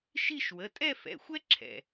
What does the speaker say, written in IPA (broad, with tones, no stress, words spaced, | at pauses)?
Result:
ʃi˥˧ʃ wə˩˧˩tʼɛ˥˧fɛ̰˩˧˩xʷɛ˥ ǁʰɛ̰˩